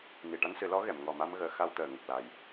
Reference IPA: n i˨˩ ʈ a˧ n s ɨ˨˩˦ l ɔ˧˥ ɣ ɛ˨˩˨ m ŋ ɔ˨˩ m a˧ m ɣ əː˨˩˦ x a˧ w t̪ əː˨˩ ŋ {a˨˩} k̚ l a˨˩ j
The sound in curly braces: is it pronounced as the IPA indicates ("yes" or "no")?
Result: no